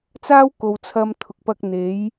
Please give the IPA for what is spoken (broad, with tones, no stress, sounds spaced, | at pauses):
t͡s aː˥ w k o˨ w t͡sʰ ɐ˧ m t̪ʰ ʊ˨ k̚ p ɐ˧ k̚ n̪ e˨˥ j